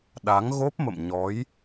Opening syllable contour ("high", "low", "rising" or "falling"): rising